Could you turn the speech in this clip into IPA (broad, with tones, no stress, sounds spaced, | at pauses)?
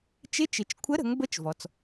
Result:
t͡ʃ ɪ˧˥ t͡ʃ ɪ˩˧ t͡ʃ kʷʰ ə˧˥ ɾ ə̤˩˧ ŋ b ə˧˥ t͡ʃ v ɔ˩ t͡s